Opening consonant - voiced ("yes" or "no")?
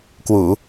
no